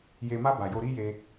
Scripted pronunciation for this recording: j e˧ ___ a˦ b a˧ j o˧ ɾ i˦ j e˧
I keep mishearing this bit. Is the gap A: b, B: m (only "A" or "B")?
B